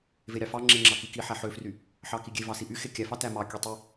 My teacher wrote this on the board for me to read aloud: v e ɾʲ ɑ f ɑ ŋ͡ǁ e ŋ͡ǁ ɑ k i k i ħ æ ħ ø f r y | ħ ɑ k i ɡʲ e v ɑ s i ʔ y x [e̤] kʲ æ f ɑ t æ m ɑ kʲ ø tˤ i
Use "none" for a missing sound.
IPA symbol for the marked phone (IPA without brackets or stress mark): e